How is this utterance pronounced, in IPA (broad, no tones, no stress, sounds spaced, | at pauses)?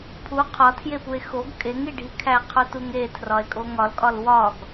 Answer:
pʰ u qʰ ɒ tʰ j e p u e̯ x o ɡ kʼ e ŋ i ɖʱ i kʰ æ qʰ o t u ŋ e tʰ r ɒ e̯ kʼ o ŋ ɒ l kʼ ɒ l w ɒ ɡ